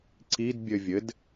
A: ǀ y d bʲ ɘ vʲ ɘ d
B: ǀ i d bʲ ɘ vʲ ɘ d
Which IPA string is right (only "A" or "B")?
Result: B